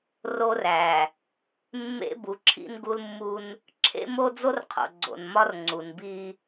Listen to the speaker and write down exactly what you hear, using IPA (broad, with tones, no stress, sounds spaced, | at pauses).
r o˦ r æ˨ | mː ḛ˦ b u˨ ǁʰ ḭ˦ n ɡ u˦ l mː u˦ n | ǁʰ ḛ˦ m o˦ d͡z o˦ r qʰ o̰˨ ɡ͡ǀ o̰˨ n m ɒ˦ r ŋ͡ǀ u˨ n b i˦